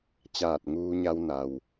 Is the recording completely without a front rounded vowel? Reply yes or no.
yes